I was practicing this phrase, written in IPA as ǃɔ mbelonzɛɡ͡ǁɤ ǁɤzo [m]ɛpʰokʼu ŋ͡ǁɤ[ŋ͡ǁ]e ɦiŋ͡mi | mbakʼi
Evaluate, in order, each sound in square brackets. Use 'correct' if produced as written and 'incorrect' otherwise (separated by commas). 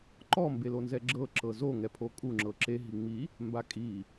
incorrect, incorrect